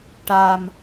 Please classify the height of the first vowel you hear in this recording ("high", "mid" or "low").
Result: low